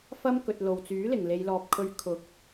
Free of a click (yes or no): yes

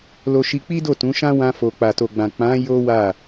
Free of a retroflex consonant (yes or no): yes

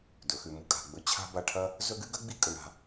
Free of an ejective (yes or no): no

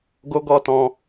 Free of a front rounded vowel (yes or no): yes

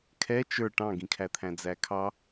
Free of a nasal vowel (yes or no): no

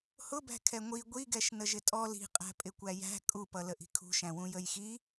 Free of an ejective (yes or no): no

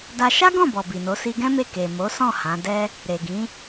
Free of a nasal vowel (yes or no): no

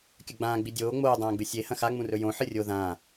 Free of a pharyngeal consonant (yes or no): no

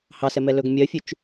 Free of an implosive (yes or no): yes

